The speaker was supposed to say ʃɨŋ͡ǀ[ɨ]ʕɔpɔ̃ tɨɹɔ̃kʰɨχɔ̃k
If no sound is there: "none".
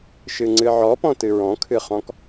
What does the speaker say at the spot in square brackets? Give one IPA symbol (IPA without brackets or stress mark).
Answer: ɨ